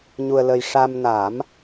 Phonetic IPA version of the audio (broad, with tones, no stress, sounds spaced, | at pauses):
ɲ u˧ ə̯ l ə˧ j ʂ a˧ m n a˨˩˦ m